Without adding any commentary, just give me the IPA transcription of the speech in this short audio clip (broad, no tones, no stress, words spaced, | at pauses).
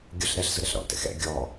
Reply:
ɡʲʊɬ ɾɛɬzʊɾɛɬ ɾɔ̰tɛ̰ xɛ̰ ɡʲɔ